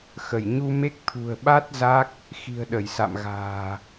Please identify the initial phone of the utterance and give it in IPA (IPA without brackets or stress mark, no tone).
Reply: x